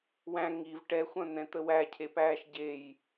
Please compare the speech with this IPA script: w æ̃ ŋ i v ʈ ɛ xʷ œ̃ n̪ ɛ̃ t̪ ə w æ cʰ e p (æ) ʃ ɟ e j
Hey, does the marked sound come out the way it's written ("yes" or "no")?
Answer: no